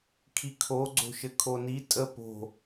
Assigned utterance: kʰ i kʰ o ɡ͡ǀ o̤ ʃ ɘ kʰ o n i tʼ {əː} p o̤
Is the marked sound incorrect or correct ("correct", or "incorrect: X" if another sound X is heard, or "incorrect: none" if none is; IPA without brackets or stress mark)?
incorrect: ə